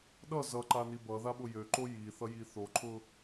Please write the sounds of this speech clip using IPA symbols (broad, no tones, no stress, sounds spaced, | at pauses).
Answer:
ɗ ʌ z ʌ ǃ a n i b ʌ ð a ɓ ʊ j ø ǃ o j i θ ʌ j i θ o ǃʰ ʊ